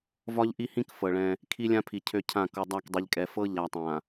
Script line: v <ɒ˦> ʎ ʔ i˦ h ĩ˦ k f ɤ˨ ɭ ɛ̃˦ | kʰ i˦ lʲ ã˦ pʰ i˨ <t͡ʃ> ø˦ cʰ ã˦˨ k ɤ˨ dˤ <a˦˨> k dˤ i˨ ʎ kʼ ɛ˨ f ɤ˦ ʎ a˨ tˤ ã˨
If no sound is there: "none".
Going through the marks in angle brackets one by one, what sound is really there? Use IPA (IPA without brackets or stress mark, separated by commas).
ɒ˦, cʰ, a˦˨